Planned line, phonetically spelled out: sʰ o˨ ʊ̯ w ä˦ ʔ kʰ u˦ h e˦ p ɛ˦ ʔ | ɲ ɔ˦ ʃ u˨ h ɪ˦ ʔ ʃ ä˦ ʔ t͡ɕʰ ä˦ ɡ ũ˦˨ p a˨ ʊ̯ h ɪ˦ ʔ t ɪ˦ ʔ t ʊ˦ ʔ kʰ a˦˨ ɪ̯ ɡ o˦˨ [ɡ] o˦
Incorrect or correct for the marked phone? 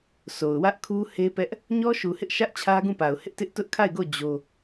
incorrect: d͡ʑ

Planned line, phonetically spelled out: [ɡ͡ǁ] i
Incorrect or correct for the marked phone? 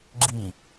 correct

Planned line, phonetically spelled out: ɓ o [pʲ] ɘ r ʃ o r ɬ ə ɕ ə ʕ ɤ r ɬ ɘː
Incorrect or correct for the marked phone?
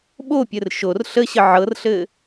correct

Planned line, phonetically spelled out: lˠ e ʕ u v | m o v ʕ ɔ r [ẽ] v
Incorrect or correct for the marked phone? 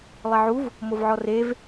incorrect: e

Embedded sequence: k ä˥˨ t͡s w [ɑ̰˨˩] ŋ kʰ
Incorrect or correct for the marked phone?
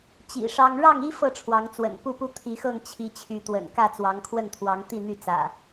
incorrect: ɑ˨˦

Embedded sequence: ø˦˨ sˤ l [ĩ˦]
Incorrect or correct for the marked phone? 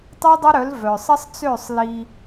incorrect: i˦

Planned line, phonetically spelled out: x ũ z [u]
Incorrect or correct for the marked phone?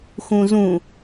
incorrect: ũ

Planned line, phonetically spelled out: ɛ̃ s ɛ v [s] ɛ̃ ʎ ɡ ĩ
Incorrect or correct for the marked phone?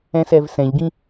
correct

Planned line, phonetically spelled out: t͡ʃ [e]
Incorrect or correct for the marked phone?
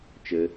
incorrect: ɘ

